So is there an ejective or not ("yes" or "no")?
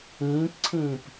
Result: no